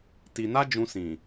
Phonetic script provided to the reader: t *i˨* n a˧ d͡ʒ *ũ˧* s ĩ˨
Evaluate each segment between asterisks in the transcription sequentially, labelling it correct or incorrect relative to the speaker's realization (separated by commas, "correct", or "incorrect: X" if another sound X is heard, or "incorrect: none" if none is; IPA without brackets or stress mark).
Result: correct, correct